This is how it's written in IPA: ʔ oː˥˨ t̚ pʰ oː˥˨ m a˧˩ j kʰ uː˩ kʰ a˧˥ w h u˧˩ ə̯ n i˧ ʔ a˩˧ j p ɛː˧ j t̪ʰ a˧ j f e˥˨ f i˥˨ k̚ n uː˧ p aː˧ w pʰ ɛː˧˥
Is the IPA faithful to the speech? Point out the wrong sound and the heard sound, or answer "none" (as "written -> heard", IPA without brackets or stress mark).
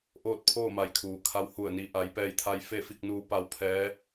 aː˧ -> a˧